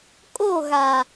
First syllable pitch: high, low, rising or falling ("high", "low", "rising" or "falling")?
falling